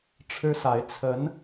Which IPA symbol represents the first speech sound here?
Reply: ʈ͡ʂʰ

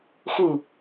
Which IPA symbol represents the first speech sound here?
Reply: x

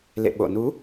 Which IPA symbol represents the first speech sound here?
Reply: l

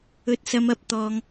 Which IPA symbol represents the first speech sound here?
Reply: ɵ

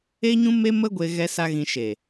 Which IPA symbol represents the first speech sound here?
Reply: e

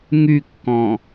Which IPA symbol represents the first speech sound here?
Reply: ŋ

